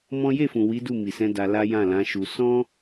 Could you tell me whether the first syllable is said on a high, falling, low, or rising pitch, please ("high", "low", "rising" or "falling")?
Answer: high